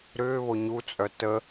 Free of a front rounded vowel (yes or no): no